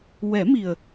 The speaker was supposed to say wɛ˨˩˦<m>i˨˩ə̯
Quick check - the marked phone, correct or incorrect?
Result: correct